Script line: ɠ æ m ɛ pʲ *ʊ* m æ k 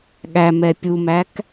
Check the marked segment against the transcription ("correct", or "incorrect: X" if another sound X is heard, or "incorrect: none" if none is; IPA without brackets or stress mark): incorrect: u